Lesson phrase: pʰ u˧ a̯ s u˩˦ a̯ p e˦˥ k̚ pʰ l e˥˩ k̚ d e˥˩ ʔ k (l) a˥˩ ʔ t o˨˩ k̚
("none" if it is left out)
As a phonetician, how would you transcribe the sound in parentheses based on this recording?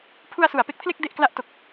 l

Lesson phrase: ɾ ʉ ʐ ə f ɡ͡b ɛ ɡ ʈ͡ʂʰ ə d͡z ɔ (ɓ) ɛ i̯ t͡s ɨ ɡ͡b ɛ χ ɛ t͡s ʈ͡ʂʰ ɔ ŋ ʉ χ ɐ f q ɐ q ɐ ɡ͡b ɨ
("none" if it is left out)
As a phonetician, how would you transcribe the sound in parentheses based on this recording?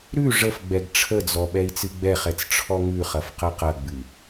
ɓ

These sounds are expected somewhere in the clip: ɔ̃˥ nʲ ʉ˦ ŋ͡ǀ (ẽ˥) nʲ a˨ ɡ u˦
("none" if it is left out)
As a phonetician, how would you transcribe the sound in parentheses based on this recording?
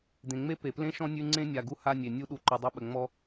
ẽ˥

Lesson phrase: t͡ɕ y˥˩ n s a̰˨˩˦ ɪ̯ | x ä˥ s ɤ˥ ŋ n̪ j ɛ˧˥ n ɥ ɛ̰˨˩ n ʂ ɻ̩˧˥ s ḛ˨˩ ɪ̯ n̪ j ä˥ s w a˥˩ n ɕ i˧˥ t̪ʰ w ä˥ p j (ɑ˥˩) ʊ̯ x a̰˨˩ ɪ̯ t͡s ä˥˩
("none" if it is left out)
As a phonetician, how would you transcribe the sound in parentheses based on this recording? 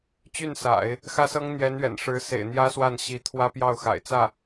ɑ˥˩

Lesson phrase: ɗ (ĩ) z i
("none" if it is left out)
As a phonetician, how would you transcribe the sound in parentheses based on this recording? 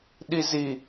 i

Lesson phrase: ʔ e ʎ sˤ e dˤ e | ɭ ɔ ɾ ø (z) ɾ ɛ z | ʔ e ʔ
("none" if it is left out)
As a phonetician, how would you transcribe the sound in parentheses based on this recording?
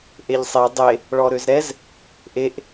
z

